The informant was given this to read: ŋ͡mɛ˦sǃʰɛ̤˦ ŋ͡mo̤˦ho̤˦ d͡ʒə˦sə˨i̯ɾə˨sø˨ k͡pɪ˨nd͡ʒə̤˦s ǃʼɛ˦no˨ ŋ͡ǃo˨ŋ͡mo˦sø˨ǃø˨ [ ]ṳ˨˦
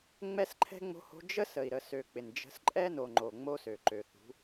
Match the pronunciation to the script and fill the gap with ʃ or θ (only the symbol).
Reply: θ